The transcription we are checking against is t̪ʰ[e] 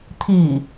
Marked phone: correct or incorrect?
incorrect